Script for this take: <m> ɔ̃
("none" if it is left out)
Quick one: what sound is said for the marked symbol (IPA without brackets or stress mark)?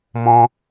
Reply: m